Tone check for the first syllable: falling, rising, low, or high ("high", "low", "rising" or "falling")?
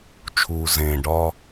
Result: low